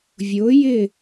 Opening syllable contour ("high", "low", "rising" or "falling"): rising